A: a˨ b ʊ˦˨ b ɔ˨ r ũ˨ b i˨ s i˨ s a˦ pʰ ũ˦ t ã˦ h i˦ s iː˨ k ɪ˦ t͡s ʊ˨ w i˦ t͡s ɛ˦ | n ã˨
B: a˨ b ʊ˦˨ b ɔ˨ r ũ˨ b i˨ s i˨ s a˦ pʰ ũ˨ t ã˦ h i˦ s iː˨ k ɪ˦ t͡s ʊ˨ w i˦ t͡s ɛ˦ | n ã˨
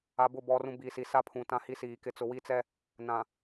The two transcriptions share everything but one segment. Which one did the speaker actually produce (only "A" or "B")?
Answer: B